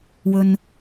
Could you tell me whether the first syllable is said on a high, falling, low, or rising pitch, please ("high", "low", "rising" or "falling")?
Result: low